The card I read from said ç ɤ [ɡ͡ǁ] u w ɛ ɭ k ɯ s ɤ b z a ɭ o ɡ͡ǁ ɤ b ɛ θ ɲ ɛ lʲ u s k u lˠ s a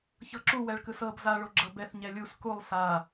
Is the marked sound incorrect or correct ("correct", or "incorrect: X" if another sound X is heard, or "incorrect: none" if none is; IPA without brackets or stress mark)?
incorrect: ǁ